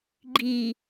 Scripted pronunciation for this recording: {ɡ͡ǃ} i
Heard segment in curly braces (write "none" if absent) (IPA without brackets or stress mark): ɡ͡ǃ